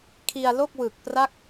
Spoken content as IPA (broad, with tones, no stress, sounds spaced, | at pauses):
kʰ i˧ a̯ l o˥˩ k̚ w ɯ˨˩ k̚ p r a˥˩ k̚